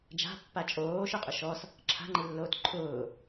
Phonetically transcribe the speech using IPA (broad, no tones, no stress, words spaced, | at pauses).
d͡ʒa̤pːa t͡ʃʼoːʃʊqʼʊ ʃɔs | ǁʰa̤ŋ͡ǃilːoːt ǃʰʊː